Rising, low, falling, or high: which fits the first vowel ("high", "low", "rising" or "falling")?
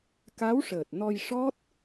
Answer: rising